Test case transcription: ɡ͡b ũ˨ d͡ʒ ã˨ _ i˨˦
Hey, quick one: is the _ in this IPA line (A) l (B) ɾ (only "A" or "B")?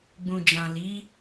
A